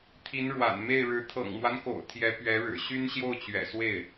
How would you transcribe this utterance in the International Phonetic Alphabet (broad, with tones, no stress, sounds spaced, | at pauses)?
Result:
t̪ʰ i˧˥ n ɻ w a̰˨˩ n m e˥˩ ɪ̯ ɻ ɻ̩˧˥ t̪ʰ ɤ̰˨˩ ŋ m w a˦ n k o̰˨˩ ʊ̯ t̪ʰ j ɛ˧˥ p ɥ ɛ˧˥ ɻ ɻ̩˨˩ ɕ y˥ n ɕ j o˥˩ ʊ̯ t͡ɕ ɥ ɛ̰˨˩ s w e˥˩ ɪ̯